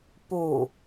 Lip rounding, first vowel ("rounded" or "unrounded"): rounded